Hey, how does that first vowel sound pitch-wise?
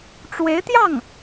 rising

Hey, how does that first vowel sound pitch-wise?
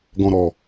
low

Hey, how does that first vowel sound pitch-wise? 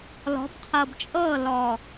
rising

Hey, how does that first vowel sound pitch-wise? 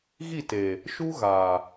falling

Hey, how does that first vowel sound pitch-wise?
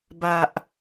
low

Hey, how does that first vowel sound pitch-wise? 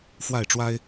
falling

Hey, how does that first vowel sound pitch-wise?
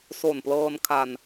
low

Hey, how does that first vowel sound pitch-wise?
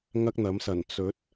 high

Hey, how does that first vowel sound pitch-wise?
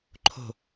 falling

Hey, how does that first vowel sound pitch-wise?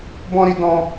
high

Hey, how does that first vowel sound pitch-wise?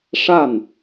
falling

